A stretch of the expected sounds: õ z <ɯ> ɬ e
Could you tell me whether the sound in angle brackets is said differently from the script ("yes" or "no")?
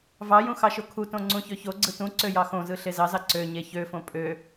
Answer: no